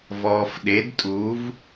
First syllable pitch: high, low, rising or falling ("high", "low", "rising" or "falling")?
low